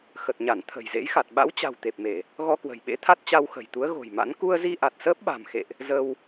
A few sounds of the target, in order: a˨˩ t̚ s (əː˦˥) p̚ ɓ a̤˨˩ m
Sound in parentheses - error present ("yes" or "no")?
no